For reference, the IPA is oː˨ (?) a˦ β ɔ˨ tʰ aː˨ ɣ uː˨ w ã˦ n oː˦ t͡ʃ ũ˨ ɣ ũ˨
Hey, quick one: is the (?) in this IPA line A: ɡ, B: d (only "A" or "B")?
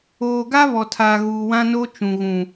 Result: A